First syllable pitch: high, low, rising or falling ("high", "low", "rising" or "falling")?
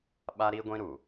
high